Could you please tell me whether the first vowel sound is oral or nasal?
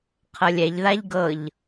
oral